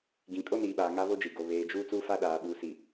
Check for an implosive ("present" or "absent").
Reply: present